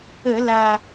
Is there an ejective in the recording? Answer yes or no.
no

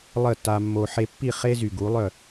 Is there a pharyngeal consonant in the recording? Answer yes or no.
yes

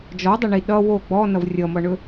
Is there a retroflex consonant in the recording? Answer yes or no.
yes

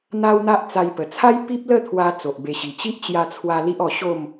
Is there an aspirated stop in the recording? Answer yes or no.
yes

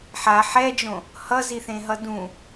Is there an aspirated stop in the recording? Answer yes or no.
no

